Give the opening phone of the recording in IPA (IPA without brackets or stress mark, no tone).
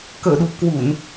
k